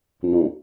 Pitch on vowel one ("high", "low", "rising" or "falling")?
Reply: low